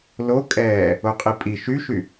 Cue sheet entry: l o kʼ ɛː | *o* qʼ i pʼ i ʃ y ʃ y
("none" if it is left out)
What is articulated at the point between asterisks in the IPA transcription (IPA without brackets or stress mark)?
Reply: o